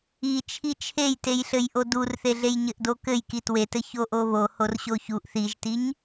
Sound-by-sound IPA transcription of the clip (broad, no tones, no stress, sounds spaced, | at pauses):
i t͡ʃʰ i t͡ʃʰ e j t e j ɬ ɘ j ʔ o d u r θ e ɮ e j ɲ ɘ ʔ d o k ɘ j k i t w e t ɘ ç o ʔ o β o h o r ɕ o ç u ʔ θ i ʒ t i ɲ